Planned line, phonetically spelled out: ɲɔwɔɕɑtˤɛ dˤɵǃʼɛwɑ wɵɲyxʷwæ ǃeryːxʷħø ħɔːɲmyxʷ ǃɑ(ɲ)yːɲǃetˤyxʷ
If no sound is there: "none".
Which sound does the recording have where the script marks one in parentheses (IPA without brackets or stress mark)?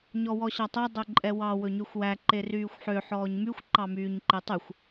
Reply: m